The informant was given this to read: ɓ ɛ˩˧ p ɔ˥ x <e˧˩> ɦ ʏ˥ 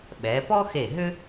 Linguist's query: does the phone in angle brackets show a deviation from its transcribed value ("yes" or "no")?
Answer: no